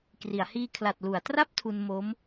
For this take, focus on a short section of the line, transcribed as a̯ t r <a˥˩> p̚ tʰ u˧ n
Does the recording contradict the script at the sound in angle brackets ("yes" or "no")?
no